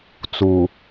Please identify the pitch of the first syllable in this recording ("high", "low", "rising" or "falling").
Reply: low